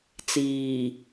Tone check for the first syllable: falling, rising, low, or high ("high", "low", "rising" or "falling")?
low